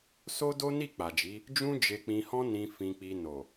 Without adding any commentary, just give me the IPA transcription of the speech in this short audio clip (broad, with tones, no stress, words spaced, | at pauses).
so˦do˦ni˦˨ k͡pa˨d͡ʒi˨˦ | d͡ʒũ˦d͡ʒe˧k͡pĩ˧hɔ̃˦ nĩ˧ fĩ˧k͡pi˧ no˨